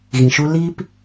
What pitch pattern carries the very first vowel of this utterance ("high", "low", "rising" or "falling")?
low